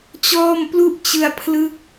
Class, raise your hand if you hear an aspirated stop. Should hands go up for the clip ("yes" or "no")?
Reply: yes